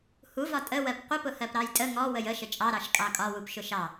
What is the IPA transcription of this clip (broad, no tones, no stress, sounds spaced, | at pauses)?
h u v ɒ tʼ ə w ɜ p qʷ ə p ʊ h ɜ p ɾ ɑ j tʼ ə ŋ ɔ w ə j ə ʃ ə t͡ʃʼ ɑ ɾ ɑ ʃ kʼ ɑ kʼ ɒ w u p ʃ ʊ ʃ ɑ